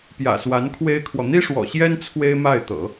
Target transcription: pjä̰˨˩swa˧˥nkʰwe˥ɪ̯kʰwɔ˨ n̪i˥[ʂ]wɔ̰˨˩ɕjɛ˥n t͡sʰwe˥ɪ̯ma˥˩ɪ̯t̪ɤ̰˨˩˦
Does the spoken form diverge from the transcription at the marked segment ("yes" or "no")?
no